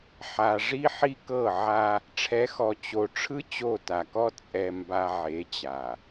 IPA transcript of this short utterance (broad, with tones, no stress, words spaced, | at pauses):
ħa˨ ʐi˦ħi˦kɤ˦˨ʕa˦ | ʈ͡ʂʰɛ˨˦xɔ˨ t͡ɕo˨ʈ͡ʂʰɯ˦ t͡ɕo˦˨ta˨kɔ˦ t͡sʼɛ˨mba˨ ʕe˨˦t͡ɕa˨